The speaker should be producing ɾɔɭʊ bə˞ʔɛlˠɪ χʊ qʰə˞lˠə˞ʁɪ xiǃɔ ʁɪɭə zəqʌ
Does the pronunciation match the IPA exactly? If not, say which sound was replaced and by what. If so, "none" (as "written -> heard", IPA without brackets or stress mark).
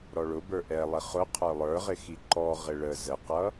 none